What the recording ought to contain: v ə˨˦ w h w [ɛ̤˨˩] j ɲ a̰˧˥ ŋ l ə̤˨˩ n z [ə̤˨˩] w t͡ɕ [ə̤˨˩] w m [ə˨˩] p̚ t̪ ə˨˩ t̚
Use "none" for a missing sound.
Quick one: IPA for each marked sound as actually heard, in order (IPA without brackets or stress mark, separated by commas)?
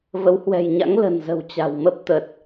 ɛ̤˨˩, ə̤˨˩, a̤˨˩, ə˦˥